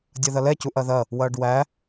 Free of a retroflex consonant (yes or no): no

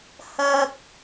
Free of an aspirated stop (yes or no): yes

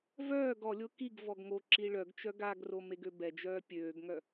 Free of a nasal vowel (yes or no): yes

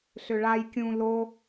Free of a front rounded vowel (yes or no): no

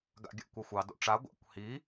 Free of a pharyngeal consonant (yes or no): yes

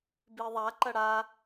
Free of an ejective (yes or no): yes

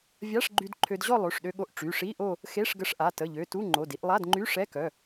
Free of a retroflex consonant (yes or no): no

